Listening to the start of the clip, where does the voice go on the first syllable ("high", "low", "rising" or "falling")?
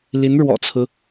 rising